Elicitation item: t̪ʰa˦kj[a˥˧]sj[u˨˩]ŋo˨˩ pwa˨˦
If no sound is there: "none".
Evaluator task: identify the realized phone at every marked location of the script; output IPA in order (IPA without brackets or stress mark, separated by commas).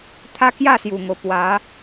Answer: a˥˧, u˨˩